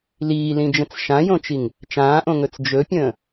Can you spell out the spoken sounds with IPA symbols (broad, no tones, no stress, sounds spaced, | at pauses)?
l iː l ĩ d͡ʒ ə̃ t͡s ʃ ã j õ t͡ʃ i ŋ | t͡ʃ ãː ʔ õ ŋ ɵ t͡s d͡ʒ ɵ pʲ ə̃ː